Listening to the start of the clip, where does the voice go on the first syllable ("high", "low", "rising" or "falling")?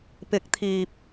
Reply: rising